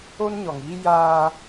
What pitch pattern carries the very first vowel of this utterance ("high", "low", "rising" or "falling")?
high